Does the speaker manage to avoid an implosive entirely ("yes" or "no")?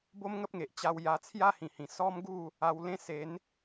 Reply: yes